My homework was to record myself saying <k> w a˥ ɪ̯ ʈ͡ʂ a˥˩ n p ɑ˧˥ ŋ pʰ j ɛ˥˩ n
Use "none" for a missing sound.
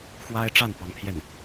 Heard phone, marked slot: x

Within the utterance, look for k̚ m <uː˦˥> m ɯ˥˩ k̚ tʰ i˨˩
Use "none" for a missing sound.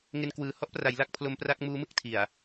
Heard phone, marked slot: uː˦˥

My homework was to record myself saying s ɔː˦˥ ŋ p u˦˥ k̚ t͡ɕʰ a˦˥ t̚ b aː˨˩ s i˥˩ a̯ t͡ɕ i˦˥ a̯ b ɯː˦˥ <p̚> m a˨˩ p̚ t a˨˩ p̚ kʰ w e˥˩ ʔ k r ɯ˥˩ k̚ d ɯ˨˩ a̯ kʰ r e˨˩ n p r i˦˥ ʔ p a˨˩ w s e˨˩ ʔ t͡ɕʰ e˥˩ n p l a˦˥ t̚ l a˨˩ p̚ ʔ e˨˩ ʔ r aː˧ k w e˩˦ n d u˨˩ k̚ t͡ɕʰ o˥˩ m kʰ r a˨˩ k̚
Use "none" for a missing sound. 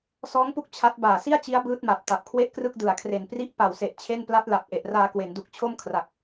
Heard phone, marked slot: t̚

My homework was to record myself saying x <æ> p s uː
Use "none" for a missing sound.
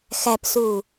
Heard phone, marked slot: æ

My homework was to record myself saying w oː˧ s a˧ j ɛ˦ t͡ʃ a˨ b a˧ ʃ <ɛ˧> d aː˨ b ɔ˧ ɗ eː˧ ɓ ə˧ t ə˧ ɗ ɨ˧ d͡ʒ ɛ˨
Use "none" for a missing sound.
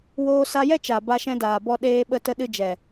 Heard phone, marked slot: ɛ̃˧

